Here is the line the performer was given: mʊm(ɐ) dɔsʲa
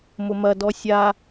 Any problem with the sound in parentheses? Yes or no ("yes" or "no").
no